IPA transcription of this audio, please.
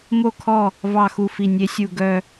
m o˦˨ kʰ ɔ˦˨ | v ɑ˦˨ x u˦˨ f i˦˨ nʲ e˦˥ sʲ u˦˨ ɡ œ˦˨

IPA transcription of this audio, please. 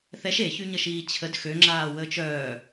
θ ɛ ʃ e ç y ɲ ə ʃ iː t͡ɕʰ ə d x ø ŋ͡ǁ aː w əː t͡ʃ œː

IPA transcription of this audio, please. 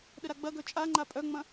ɗ ə ɾ a ɡ͡b ɐ ɡ œ t͡ʃʼ a ŋ͡ǃ a pʼ œ ŋ͡m ɐ̃

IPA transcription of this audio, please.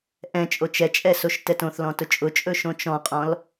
ʔ ɛ̃ t͡ʃʼ o t͡ʃ ɛ t͡ʃʼ ɛ s o ʃ t ɛ t õ θ l ɔ̃ t ʊ t͡ʃʼ ʊ t͡ʃʼ ɵ ʃ õ t͡ʃ ɔ̃ qʼ ɔ̃ l

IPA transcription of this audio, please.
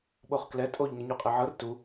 ɓ o χ k l ɛ tʼ o ʎ ŋ ɛ ɲ u qʼ ɛ ʕ ɤ r t u

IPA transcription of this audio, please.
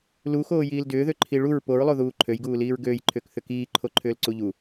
l u x oː j iː l d ʏː ð ø ǃʰ i ɭ u ɹ p o ɹ lˠ o ð uː ǃʰ ø j ɡ uː l iː ɹ ɡ øː j ǃʰ ʏː k θ ʏ k iː ǃʰ o ǃʰ ʏː l ǀ u ʎ u

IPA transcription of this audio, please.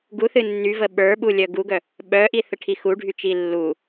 ɡ u θ ɨ nː y v ə ɓ ə˞ ɓ u lʲ œ ɡ u ɡ œ | ɓ œ ʔ i θ ə ʈʰ i x u ɖʱ y t͡ʃ i lː u

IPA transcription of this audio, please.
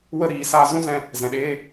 w ə˦˨ ɾ iː˨ s aː˧ z ũ˦ z ɛ̃˧ | z ɛ̃˨ ɗ eː˦

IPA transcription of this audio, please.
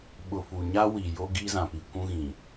ɓ ʊ˨ f u˨ ɲ a˦ w i˨ j o˦ ɡ iː˦ z ã˨ p i˨ kʷ ũ˦ ɣ ĩ˨

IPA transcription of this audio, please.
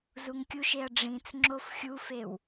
z u ŋ kʲ u ʃ e ɐ̯ ɖ͡ʐ ĩ t͡s ŋ͡ǁ o f xʲ u f e w

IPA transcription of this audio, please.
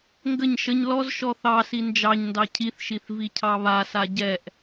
ŋ ɡ ə ɲ ʃ ə ɲ l ɔ z ʃ ɔ θ ɑ s i n d͡ʒ ɑ ɲ n d ɑ cʰ i θ ʃ i θ v i cʰ ɑ β a s a ɟ ɛ ʔ

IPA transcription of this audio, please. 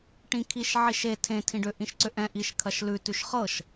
ʈ ĩ kʰ i ʃ ʕ i ʃ e tʰ ẽ tʰ ĩ ɖ ʏ ʔ ĩ ʃ ǀ ʏ ʔ ɛ̃ ʔ i ʃ kʰ ɐ ʃ l ʉ t ʉ ʃ χ ɤ ʃ

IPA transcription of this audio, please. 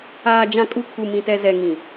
aː˨ d͡ʒ ã˨ kʼ u˨ kʰ u˨ m ĩ˨ t ɛ˨ z ɛ˨ ŋ ĩ˨

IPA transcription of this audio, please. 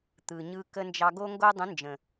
t̪ ɯ˨ ɲ ɯ˧ k ə˧ n d͡ʒ ɑ˧ ɡ o˦ ŋ ɡ o˦ dˤ ə̃˨˦ n d͡ʒ ə̃˨

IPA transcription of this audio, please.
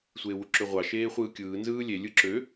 sʷ eː w u ǁ ø ʁʷ ɑ ʃ eː χʷ ɯː kʲ ɯː n z ɯː lʲ e lʲ ɯ ǁ ø

